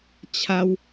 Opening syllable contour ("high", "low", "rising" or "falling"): high